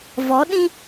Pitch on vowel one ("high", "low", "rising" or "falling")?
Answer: rising